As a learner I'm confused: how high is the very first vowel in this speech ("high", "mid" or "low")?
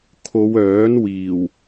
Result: mid